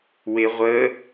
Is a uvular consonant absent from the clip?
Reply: no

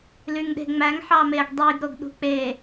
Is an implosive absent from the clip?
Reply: no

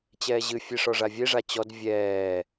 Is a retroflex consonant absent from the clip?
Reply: no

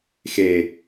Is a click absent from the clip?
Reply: yes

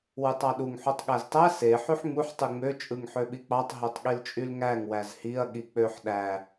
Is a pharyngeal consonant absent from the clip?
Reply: no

